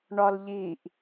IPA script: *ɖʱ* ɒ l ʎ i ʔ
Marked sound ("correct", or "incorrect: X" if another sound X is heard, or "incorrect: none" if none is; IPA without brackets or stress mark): incorrect: ɳ